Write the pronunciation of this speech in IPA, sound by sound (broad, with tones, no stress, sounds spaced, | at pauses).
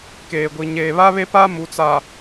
k eː˨ ɡʷ i˨ ɲ eː˨ β a˦ β e˦ p a˦ m u˨ t͡s a˨